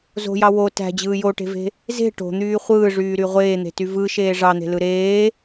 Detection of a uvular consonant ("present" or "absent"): present